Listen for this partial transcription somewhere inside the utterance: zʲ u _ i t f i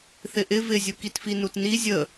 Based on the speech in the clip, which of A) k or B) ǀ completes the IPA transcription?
A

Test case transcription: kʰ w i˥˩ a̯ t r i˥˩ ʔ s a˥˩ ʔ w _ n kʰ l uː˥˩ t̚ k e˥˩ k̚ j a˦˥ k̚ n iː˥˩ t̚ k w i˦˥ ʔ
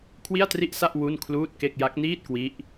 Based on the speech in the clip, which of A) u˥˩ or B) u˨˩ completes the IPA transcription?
A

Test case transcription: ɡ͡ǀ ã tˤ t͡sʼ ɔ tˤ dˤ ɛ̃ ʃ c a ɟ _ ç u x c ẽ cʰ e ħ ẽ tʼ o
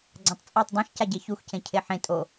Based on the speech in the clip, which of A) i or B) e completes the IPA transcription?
B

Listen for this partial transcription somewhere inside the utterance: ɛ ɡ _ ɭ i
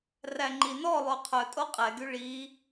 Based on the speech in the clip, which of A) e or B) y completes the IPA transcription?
B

